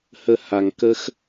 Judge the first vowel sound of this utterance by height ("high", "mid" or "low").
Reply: mid